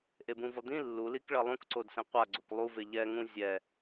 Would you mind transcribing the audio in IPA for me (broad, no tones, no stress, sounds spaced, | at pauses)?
ʔ e b ũ v ʌ d̪ ĩ lː u l i k ɭ ʌ lˠ ũ k ǀ o d s ẽ qʷ a ɡ͡ǀ o k lˠ u v e ʎ ɛ ŋ ũ zʲ ɛ